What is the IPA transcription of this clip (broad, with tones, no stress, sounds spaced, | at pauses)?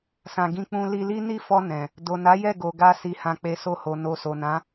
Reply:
s ã˧ ɡ ĩ˦ k͡p ũ˦ l i˧ l i˦ n i˦˨ f ɔ˧ n ɛ̃˨ | d o˨ n a˨˦ j ɛ˦˨ ɡ o˨ ɡ a˧ s i˨ h ã˨ k͡p e˨ s o˧ h o˨ n o˨ s o˨ n ã˨˦